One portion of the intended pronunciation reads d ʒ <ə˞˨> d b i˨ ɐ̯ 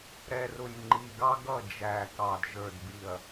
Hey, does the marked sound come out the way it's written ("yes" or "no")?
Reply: yes